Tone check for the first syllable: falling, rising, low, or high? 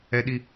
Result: high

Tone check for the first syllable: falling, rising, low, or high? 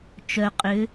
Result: low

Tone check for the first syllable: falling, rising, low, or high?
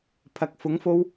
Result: low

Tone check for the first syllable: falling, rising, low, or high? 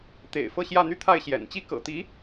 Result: low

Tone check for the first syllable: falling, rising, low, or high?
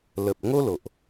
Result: low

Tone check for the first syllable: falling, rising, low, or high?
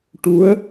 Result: rising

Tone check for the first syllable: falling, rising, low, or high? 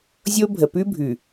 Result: high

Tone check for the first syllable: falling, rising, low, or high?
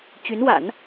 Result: rising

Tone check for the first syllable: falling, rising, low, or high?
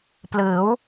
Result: rising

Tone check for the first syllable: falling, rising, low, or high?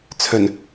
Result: low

